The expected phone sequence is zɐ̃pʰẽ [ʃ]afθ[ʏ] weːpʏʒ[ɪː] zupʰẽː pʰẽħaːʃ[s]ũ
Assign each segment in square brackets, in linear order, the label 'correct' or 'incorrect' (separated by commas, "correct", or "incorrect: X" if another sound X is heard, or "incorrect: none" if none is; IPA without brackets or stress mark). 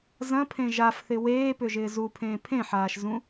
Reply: incorrect: ʒ, incorrect: ɪ, correct, incorrect: z